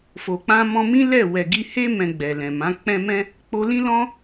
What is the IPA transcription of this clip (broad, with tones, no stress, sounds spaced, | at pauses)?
f o˨ k͡p ã˧ m ɔ̃˧ m ĩ˦ l ɛ˦˨ w ɛ˨ ɡ i˧ h e˦ m ɛ̃˧ ɡ͡b ɛ˨ l ɛ̃˨ m ã˨˦ k͡p ɛ̃˧ m ɛ̃˦ | k͡p o˧ l ĩ˦ l ɔ̃˦